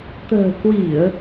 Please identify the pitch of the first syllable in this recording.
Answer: low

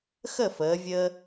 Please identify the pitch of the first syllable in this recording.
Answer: falling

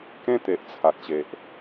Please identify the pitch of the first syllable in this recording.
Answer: high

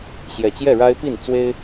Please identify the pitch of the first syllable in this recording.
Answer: low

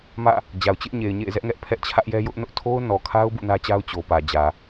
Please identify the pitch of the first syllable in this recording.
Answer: falling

